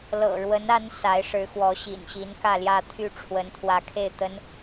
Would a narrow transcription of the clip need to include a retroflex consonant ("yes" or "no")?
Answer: yes